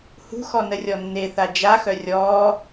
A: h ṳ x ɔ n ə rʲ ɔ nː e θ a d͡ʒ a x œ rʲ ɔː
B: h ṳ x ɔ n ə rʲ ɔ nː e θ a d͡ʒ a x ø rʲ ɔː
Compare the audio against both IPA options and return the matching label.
A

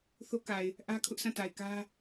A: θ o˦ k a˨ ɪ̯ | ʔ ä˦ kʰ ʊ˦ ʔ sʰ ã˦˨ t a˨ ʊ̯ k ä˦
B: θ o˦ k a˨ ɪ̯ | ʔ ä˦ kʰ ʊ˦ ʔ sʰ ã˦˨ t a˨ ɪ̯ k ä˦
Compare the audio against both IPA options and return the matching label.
B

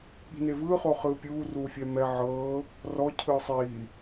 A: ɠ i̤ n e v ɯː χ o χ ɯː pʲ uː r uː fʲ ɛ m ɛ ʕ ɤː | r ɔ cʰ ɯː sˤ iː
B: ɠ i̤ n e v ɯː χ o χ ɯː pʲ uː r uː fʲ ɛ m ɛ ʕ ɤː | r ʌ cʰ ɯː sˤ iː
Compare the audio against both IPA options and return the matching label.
A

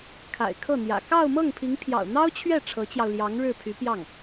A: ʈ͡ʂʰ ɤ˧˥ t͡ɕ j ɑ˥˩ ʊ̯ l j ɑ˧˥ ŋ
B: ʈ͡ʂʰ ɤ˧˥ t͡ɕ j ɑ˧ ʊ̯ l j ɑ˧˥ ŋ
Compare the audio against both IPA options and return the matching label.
B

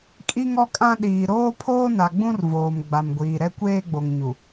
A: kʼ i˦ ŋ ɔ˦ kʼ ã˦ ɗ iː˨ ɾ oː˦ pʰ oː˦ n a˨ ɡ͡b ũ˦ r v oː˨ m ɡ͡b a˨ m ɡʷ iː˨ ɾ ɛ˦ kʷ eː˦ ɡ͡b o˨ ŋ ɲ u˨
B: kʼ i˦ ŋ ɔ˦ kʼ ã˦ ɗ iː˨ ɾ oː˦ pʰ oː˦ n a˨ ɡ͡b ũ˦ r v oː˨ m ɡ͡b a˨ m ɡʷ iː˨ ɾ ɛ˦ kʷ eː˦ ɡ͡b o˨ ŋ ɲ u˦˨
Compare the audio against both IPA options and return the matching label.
A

